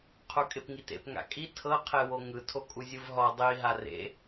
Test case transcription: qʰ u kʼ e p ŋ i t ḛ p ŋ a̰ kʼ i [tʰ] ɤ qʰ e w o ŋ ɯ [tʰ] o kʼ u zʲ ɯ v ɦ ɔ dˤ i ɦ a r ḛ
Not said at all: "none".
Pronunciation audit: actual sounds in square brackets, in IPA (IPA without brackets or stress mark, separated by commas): tʰ, tʰ